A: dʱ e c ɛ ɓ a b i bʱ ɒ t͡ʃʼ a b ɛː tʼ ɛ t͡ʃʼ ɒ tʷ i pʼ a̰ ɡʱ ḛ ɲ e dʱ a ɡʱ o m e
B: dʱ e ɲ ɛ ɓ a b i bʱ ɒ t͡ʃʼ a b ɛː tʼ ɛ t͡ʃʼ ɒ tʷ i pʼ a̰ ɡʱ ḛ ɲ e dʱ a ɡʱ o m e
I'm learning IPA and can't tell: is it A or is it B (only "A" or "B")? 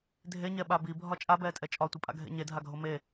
B